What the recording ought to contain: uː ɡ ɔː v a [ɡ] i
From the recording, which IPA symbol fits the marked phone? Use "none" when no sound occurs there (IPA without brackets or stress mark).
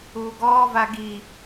ɡ